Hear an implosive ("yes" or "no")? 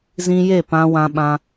yes